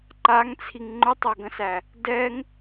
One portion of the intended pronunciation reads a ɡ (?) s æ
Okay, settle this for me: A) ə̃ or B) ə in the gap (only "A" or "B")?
A